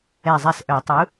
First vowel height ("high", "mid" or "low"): mid